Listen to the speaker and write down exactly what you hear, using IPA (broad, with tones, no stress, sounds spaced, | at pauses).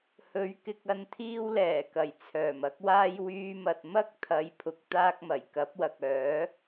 h ɵ˨˥ ɥ k ɪ˧ k̚ ɐ˧ n t̪ʰ iː˥ w l ɛː˨˩ k ɐ˨˩ j t͡sʰ œː˨˩ m ɐ˥ k̚ w aː˥ j w yː˧ m ɐ˨ t̚ m ɐ˥ k̚ t̪ʰ ɐ˨˧ j pʰ ʊ˨ k̚ t̪ aː˥ k̚ m ɐ˨˩ j k ɐ˨˥ p̚ w ɐ˨ k̚ œː˨˥